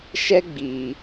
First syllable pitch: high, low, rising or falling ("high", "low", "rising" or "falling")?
high